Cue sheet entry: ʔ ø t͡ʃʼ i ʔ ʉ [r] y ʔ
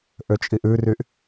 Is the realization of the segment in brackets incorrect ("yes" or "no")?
no